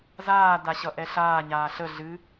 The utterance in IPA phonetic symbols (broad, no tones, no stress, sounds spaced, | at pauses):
z aː d a ɕ ʌ ʔ ɛ ɬ aː ɲ aː ɬ ə ɮ ɨ